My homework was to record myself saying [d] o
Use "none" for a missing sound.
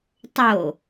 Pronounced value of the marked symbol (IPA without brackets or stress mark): tˤ